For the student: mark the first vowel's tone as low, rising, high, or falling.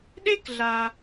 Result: high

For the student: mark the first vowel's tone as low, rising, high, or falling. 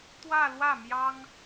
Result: falling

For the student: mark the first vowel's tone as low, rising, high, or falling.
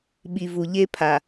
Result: low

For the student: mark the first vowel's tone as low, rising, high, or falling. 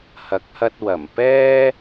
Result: rising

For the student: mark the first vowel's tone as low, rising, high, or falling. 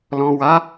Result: low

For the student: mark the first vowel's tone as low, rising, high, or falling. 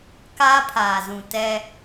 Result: high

